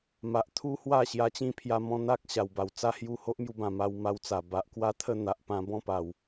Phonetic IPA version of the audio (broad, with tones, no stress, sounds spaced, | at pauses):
m a˨ ʔ t̪ʰ u˦ h w a˥˧ ɕ j a˧ t͡ɕ ĩ˥˧ pʰ j a˧ m ɔ̃˧ n̪ a˦ k̚ ɕ a˨˩ w b a˨˩ w t͡s a˦ h j u˥˧ h o˦ ʔ m j u˧ b ã˨˩ m a˧ w m a˧ w t͡s a˨˩ b a˨ ʔ k w a˦ t̪ʰ ə˥˧ n̪ a˨ ʔ p ã˧ b ɔ̃˥˧ p a˨˩ w